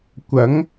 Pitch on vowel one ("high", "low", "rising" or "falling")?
rising